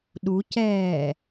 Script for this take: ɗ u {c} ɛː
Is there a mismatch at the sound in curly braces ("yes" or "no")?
no